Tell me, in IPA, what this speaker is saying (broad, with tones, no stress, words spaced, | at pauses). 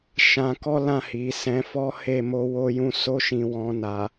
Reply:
ʃã˧kɔ˦lã˦˨hi˨ sɛ̃˨˦fɔ˦he˦˨ mo˧ wo˦jũ˦ so˧ʃĩ˨wɔ̃˨ na˨